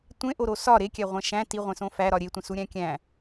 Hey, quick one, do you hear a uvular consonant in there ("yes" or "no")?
yes